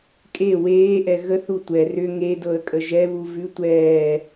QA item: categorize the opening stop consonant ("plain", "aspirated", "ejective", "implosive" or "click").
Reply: ejective